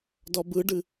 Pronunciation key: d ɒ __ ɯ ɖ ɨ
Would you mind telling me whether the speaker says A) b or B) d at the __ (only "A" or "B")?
A